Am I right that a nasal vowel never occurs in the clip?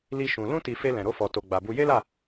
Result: no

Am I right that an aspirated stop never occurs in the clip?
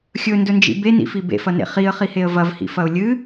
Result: yes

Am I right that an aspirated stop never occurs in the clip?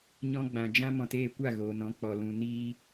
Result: yes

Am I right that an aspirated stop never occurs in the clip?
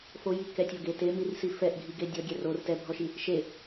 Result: yes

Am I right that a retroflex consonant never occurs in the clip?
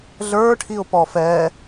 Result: no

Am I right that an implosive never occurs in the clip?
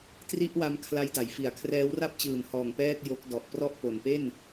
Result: yes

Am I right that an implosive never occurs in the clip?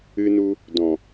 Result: yes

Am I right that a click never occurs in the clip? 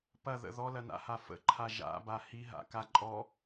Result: no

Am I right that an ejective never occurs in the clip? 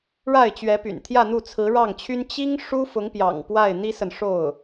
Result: yes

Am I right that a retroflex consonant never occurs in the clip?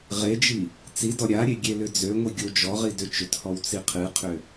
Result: yes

